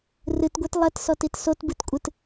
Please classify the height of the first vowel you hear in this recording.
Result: high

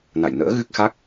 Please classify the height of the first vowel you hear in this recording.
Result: low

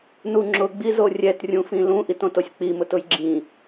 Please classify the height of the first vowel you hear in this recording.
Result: high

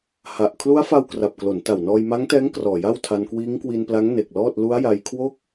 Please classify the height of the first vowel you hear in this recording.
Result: low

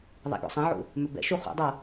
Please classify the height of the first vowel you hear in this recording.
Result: low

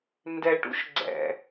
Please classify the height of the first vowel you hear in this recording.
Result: mid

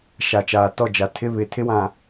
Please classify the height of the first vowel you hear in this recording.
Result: low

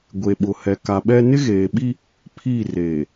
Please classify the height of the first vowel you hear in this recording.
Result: mid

